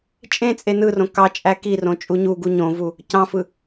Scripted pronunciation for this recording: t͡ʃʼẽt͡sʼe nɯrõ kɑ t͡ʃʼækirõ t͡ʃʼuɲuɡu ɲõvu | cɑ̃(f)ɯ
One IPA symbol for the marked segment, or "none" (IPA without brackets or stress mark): f